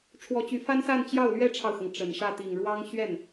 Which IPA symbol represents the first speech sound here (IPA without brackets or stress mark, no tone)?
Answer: ʈ͡ʂʰ